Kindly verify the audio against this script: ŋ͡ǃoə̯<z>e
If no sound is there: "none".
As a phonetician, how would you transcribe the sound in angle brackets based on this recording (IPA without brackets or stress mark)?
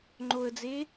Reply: d͡z